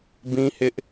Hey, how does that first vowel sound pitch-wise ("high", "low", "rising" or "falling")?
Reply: high